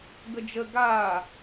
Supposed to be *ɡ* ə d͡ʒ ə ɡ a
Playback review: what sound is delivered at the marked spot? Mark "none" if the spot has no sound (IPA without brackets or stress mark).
ɡ